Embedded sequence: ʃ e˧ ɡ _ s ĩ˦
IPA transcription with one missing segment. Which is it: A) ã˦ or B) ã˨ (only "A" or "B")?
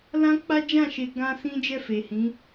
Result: A